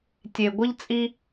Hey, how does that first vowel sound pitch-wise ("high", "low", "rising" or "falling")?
low